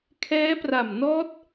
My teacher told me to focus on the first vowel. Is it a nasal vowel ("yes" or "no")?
no